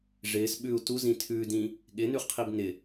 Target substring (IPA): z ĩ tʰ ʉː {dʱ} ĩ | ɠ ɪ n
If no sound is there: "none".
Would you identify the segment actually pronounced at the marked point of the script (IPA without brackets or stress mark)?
d